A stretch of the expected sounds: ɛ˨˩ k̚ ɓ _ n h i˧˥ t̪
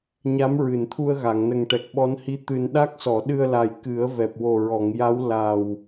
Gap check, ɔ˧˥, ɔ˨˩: ɔ˧˥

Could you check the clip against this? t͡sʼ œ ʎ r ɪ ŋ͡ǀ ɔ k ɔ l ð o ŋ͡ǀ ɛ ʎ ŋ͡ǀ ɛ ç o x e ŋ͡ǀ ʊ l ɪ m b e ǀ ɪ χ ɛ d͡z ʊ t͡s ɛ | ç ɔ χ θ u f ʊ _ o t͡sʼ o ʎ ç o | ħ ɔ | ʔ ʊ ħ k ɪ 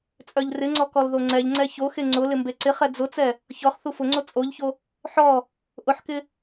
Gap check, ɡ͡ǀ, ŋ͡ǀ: ŋ͡ǀ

